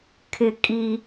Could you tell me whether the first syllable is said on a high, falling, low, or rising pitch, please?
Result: falling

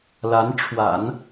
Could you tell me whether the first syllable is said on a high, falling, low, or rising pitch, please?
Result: rising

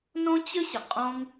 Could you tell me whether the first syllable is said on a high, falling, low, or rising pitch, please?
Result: high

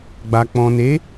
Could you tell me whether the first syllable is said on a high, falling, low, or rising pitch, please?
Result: low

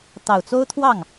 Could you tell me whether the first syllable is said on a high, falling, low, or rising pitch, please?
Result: low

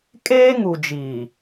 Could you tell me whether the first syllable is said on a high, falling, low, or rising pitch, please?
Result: high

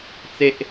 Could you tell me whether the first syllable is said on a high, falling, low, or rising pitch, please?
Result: high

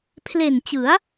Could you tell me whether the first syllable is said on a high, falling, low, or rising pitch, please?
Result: low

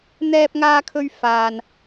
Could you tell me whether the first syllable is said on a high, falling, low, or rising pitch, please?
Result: high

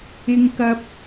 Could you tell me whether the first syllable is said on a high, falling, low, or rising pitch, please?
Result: high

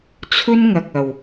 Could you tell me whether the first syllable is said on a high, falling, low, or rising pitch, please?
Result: high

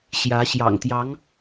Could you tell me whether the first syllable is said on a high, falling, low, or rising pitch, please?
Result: rising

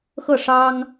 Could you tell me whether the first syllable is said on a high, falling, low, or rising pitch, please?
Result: falling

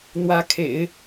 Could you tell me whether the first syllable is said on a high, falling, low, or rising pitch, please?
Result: rising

